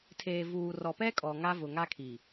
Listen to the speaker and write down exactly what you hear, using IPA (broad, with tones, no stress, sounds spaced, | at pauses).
tʰ eː˨ v uː˨ r ɔ˨ p ɛ˦ kʼ ɔ˨ ŋ a˦ v ʊ˨ ŋ a˦ kʰ i˨